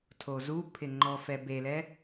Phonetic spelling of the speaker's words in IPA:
tʰ o z u pʰ ɪ ŋ͡ǃ ɔ f ɛ b e l ɛ

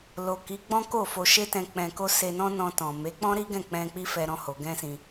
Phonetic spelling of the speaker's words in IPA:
l o˨ k i˨˦ ɡ͡b ɔ̃˦ k o˦˨ f o˧ ʃ e˦ t ɛ̃˧ k͡p ɛ̃˧ k o˦ s e˧ n ɔ̃˦ n ɔ̃˧ t ɔ̃˨ m e˨˦ k͡p ɔ̃˦ ɾ i˦ ɡ ɛ̃˦˨ k͡p ɛ̃˧ k͡p i˦ f ɛ˧ ɾ ɔ̃˦ h o˧ ɡ ɛ̃˦ s ĩ˧

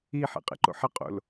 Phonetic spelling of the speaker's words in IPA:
i ħ ḛ qʼ ḛ ǃ o̰ ħ ɐ qʼ o̰ l

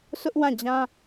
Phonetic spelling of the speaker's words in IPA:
sʰ ʊ˦ ʔ w ã˦˨ d͡ʑ ã˦

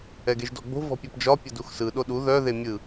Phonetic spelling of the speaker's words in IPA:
ɛ ɡ e ʒ d ɔ ɡ͡b o̤ v ɔ̤ pʲ ɔ p d͡ʒ ɒ pʲ ə d u x s ɯ ɗ o ɗ u ð œ ð e mʲ ɯ

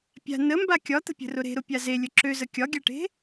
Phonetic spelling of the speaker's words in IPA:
pʲ a̤ n ə m b a kʲ ɒ t̪ ə̤ pʲ ə̤ r ʊ ɾ e̤ ɾ ʊ pʲ a z e lʲ ə ǁ ø z ə kʲ ɒ ɡʲ a ʈ e̤

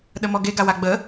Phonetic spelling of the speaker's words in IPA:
ɗ ə m ɔ ɡ e ɡ a w a ɡ͡b ə

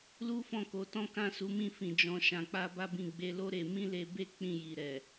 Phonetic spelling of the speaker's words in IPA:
l u˦ f ɔ̃˦˨ k o˨˦ t ɔ̃˦ k ã˦˨ s u˨˦ m ĩ˦˨ f ĩ˨ d͡ʒ ɔ̃˧ ʃ ã˧ k͡p a˦ b a˦ b ĩ˦˨ ɡ͡b e˧ l o˦ ɾ e˧ m ĩ˦ l e˧ b e˦ k͡p ĩ˦˨ j i˨ ɾ ɛ˨

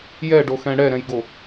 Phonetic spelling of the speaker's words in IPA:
j ɛ ɖ o x ɛ̃ ɽ ɛ ɾ ɛ̃ j ɡ o

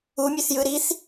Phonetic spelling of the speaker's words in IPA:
u mʲ ø θ j ɯ ɾ i θ

